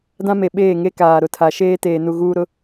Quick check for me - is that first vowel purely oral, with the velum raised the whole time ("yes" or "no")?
no